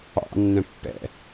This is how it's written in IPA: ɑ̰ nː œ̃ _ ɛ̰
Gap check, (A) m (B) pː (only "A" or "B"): B